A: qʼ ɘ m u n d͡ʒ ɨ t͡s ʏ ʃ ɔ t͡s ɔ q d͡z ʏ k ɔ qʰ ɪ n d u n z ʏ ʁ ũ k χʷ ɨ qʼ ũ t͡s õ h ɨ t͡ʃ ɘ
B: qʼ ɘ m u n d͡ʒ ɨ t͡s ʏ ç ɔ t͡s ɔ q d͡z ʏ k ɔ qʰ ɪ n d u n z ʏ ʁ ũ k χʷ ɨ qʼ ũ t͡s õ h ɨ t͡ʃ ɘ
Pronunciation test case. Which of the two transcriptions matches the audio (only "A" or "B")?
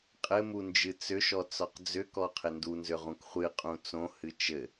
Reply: A